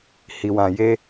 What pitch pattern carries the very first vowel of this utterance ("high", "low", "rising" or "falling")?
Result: low